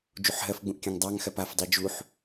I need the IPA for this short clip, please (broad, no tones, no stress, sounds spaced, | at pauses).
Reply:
d͡ʒ u ħ ɦ ɜ f ɡ͡b ũ ʔ kʲ õ ŋ dˤ ɑ ŋ x ɜ p a f dˤ i d͡ʒ u ħ